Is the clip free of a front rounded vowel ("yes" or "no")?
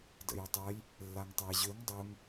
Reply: no